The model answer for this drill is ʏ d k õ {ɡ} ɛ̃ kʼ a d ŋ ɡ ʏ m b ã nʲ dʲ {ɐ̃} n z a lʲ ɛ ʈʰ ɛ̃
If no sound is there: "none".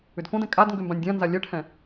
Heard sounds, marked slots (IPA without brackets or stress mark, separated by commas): d, ã